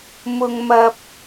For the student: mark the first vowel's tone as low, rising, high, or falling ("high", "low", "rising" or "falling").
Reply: low